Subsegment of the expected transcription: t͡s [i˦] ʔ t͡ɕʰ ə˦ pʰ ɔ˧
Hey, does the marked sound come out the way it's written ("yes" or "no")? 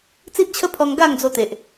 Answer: yes